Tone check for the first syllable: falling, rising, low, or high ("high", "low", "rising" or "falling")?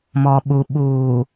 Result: low